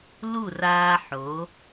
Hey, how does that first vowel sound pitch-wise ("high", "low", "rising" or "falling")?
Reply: falling